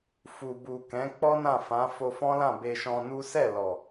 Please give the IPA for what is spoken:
fu˨bu˨kɛ̃˨˦ k͡pɔ˦nã˦˨fã˨˦ fo˧fɔ̃˦lã˦˨ be˧ʃɔ̃˧nu˦ sɛ˦˨lɔ˨

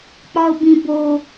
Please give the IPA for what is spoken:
k͡pɒʊ̯bĩ bo

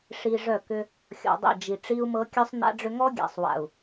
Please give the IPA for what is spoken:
ʂi˨ʐœ˦˨kʏ˦ | xʲɔ̰˨dˤḭ˦˨d͡ʒi˨ ʈ͡ʂi˦u̯mɤ˦ kʲœ˦sˤna̰˦ɖ͡ʐʏ˦ ŋɔ˦ɡʲa̰˨sˤwa̰˨u̯

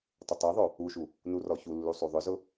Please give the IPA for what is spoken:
tˤʊtˤoðˤo | uʃu | nurɔçulːu sˤuðˤʏzʊ

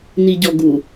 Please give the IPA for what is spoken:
niɟɔɡu

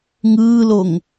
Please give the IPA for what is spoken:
ŋɯːloŋ

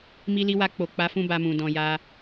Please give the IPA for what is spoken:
mi˧li˧wa˧ k͡po˨ k͡pa˨˦ fũ˦ba˧mũ˨ dɔ̃˨ja˧

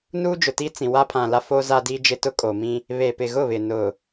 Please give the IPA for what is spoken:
nuː˦d͡ʒʊ˨ti˦t͡sĩ˨ wa˦pʰã˨la˦ fo˦za˦diː˦d͡ʒɪ˦ tʊ˦kʼo˨mĩ˦ | βe˨pɪ˨ɣʊ˦˨βɪ˨ nʊ˨

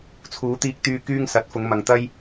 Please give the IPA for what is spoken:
t͡sʰuː˨˥t̪iː˧k̚t̪yː˧ kyː˥ŋsɐ˨˥t̚fʊ˨˧ŋmɐ˨ŋ t̪ɐ˥j

